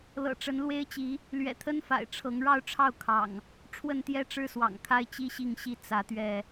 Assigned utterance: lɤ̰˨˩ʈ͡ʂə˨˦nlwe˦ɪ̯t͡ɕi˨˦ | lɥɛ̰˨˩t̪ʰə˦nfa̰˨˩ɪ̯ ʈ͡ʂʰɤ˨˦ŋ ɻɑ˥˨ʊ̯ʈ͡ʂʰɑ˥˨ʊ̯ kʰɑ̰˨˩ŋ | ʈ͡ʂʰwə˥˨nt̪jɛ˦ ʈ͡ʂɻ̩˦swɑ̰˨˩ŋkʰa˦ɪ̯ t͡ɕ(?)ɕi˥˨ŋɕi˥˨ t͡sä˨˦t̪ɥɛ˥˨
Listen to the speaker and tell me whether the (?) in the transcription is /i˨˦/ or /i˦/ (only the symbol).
i˦